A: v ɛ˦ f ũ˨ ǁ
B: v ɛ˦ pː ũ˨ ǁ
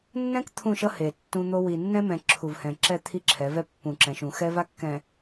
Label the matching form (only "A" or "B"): B